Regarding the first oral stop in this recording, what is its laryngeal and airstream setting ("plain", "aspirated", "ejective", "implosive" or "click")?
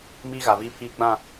aspirated